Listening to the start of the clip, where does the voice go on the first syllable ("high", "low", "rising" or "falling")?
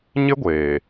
high